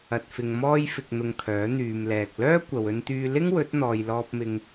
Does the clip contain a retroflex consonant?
no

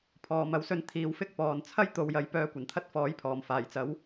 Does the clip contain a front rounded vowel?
yes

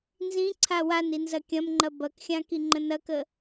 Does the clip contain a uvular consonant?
no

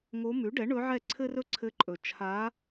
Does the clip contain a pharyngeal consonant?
yes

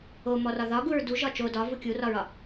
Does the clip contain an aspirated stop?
no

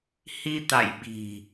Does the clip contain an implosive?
yes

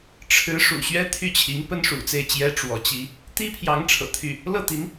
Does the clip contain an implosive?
no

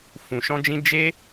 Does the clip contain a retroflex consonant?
no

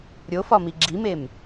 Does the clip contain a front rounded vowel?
no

